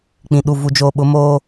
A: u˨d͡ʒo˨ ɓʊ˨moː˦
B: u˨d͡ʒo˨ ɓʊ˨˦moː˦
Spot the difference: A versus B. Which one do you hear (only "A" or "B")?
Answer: B